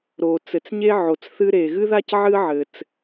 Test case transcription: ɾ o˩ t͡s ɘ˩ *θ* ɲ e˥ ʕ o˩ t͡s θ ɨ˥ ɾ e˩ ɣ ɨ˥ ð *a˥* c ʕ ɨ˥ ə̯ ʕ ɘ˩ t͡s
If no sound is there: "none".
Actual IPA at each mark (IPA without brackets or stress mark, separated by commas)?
t͡s, a˥